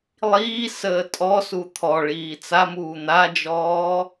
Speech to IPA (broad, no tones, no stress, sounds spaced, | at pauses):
lˠ iː s əː tʼ ɔ s u t̪ʰ ɔ ɭ iː t͡s a m uː n̪ a d͡ʒ ɔː